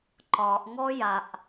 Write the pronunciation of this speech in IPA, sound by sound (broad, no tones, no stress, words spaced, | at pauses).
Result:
ǃɒʔŋɔ jaʔ